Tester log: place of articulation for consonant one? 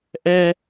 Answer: glottal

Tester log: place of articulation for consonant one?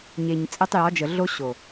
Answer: palatal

